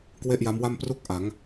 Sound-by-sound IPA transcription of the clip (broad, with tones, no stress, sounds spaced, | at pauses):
k w e˥˩ ʔ j a˦˥ m w a˥˩ m p r u˥˩ k̚ ʔ a˩˦ ŋ